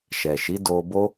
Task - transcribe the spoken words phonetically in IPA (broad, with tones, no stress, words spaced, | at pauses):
ʃɛ˨ʃi˨˦ do˧bo˦